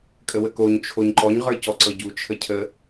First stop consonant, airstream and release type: ejective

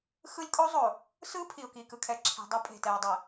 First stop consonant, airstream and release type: ejective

